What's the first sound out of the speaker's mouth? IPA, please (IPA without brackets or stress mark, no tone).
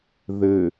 ð